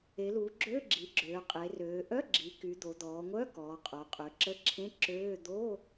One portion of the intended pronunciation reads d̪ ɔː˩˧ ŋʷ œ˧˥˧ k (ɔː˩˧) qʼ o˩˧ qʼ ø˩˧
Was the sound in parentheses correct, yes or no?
yes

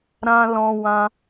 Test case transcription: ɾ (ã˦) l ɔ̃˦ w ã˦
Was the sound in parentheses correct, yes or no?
yes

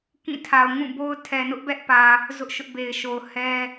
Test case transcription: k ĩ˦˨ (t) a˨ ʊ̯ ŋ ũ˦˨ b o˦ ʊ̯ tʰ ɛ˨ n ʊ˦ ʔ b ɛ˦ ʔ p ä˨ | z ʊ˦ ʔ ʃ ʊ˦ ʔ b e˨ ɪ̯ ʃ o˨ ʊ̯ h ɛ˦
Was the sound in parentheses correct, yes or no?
no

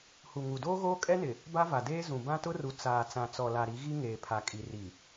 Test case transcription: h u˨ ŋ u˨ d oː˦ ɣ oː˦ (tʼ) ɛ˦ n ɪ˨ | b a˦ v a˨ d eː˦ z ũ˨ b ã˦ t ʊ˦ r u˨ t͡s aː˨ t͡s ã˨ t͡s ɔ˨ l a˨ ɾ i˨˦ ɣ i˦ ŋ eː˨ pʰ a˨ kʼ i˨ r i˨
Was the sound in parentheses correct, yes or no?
no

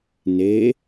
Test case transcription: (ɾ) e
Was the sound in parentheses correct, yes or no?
no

